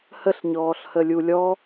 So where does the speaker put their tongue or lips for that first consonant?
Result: throat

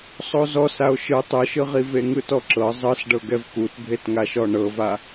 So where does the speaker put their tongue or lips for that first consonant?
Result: tongue tip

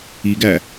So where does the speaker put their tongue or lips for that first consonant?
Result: velum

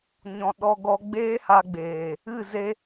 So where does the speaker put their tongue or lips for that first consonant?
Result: palate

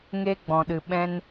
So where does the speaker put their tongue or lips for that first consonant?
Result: velum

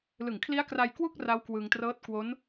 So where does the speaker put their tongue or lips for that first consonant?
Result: tongue tip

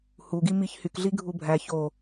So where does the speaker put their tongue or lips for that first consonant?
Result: throat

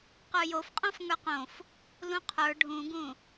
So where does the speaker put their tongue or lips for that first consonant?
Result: uvula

